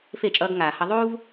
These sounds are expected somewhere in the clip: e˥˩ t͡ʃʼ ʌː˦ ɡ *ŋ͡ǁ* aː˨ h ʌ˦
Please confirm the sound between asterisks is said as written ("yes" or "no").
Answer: no